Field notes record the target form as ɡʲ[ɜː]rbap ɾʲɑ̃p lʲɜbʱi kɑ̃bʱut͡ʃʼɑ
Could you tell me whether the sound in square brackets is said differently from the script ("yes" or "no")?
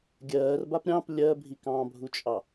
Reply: no